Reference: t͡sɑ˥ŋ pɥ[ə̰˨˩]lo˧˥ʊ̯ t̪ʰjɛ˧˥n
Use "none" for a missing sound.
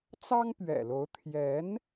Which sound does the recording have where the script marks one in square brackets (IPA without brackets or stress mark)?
ɛ̰˨˩